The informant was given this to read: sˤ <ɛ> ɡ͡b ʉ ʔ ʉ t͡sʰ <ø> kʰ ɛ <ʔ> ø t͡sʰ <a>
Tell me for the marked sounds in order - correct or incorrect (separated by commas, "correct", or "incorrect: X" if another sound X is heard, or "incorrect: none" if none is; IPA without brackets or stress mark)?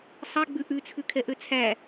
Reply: correct, incorrect: ʉ, correct, incorrect: æ